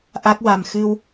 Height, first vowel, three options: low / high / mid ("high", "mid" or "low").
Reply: low